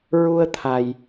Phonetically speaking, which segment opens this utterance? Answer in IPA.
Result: ɹ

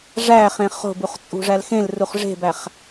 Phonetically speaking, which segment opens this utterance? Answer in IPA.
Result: ʐ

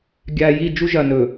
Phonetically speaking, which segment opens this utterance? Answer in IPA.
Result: ɡʲ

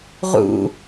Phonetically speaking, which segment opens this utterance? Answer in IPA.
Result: ʁ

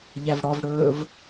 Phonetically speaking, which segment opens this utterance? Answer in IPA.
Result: ʎ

